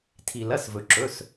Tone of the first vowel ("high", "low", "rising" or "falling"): low